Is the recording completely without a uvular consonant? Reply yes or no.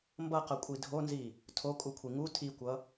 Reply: no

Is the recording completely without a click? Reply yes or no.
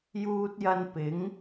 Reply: yes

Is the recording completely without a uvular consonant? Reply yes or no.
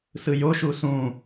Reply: yes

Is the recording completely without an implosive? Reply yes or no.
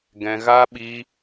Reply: no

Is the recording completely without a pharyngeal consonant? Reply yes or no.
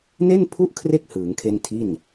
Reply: yes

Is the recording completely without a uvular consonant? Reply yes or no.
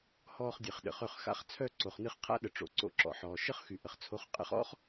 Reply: no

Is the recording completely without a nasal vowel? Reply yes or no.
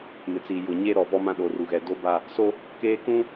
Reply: no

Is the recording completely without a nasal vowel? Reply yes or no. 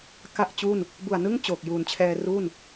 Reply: yes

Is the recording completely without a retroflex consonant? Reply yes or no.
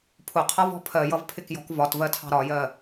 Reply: yes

